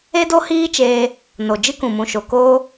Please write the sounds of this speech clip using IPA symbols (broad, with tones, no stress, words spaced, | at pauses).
e˦do˦hiː˦t͡ʃeː˧ | no˨ d͡ʒɨ˦kũ˨mũ˨ʃo˨ koː˦